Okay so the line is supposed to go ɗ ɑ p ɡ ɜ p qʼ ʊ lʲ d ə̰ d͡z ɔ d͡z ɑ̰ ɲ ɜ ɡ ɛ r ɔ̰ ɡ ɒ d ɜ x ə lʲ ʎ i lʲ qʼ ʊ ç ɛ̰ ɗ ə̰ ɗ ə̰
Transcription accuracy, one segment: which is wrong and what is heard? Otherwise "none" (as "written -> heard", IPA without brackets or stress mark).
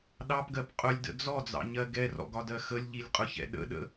none